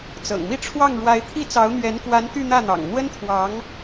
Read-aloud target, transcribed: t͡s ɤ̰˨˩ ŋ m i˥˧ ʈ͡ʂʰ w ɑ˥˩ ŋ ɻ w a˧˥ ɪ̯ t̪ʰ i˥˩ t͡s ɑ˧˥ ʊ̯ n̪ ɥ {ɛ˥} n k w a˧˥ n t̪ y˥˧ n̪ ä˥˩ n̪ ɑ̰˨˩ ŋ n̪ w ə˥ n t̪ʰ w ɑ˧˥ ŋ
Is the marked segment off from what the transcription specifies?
yes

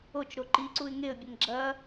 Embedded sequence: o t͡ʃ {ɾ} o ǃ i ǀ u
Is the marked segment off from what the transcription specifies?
no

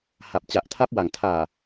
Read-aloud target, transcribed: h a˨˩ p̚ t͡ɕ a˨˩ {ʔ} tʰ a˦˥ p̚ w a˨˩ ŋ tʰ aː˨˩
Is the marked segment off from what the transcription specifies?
no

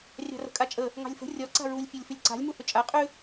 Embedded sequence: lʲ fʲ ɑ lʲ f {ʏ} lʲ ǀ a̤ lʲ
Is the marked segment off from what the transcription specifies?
no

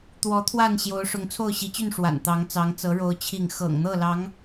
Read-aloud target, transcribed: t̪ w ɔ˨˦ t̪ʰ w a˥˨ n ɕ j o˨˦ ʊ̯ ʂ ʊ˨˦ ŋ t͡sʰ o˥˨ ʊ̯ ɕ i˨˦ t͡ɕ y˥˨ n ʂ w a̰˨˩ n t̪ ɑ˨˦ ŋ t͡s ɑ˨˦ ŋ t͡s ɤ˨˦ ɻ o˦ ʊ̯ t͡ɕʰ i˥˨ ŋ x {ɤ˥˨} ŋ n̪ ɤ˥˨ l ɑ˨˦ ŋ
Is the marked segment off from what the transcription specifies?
yes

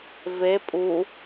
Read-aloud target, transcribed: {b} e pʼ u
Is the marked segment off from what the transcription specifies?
yes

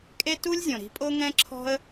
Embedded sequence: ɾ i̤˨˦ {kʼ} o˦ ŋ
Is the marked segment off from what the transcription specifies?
yes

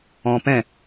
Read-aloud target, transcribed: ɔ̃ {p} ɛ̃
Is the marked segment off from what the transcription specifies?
no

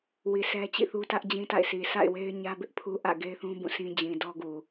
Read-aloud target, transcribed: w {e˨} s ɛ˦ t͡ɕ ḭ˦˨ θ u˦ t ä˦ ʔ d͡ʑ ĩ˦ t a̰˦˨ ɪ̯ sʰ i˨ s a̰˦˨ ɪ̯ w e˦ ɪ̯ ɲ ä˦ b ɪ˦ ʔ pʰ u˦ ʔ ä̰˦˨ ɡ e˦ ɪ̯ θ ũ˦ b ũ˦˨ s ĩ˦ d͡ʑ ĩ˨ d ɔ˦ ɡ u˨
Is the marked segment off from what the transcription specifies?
yes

